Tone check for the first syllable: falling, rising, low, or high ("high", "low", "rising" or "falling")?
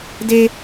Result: high